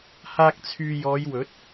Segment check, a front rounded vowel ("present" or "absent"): present